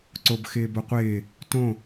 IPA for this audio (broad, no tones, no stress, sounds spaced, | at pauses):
ǀ o b x ɪː b o qʷ ɪː | t õ